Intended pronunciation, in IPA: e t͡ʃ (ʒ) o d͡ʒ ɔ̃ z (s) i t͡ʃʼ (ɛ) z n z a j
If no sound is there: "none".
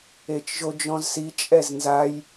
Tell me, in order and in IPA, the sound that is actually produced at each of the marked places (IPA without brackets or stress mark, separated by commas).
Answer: ʒ, s, ɛ